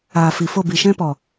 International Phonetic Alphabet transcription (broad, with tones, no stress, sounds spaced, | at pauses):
aː˨ f i˨ f o˦˨ b i˨ ʃ ɛ̃˦ p ɔ˨